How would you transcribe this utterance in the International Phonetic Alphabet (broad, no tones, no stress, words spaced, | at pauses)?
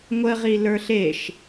ŋʷəʁi lə˞ɬeʃ